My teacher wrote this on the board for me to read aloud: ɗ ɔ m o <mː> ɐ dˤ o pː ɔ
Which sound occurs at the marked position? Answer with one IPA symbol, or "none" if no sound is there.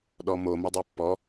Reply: m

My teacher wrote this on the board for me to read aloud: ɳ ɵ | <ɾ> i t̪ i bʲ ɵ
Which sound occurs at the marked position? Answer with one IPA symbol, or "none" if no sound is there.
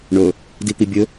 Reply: d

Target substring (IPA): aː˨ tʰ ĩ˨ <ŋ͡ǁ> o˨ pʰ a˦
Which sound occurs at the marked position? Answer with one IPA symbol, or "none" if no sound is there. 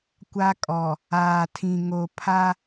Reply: ŋ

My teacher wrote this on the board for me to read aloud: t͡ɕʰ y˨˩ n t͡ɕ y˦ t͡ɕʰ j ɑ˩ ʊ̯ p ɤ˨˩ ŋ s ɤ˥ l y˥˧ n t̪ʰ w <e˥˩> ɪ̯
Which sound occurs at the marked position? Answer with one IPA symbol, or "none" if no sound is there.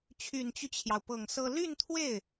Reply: e˥˩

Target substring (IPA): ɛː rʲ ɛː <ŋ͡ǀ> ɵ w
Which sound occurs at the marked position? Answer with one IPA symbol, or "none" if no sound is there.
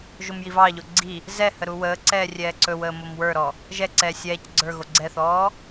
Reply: ǀ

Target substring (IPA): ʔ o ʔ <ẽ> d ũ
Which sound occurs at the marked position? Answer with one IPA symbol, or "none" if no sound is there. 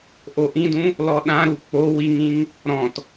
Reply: ĩ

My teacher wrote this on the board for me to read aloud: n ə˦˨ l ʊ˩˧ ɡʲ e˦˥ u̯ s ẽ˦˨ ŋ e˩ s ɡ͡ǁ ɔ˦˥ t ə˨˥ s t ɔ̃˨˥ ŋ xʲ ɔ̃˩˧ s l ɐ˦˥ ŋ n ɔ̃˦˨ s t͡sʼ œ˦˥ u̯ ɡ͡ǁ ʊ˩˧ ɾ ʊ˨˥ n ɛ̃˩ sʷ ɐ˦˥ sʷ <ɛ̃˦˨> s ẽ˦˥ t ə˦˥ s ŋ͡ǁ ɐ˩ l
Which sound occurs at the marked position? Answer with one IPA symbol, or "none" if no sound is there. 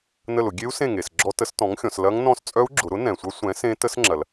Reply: ɛ̃˨˥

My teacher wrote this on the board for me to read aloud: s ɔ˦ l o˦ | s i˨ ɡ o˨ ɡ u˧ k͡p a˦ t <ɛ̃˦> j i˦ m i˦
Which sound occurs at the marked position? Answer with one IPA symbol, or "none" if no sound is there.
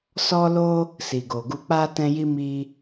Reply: ɛ̃˦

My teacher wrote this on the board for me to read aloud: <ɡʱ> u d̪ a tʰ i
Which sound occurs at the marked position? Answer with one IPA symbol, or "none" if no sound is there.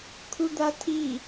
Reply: kʰ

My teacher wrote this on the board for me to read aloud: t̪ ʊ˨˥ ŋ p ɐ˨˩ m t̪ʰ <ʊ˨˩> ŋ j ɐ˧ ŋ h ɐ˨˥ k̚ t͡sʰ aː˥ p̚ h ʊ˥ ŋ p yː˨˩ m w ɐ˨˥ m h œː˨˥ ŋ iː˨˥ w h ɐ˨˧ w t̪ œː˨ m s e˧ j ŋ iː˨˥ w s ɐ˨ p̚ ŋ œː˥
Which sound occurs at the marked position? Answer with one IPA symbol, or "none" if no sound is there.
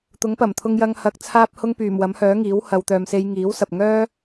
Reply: ʊ˧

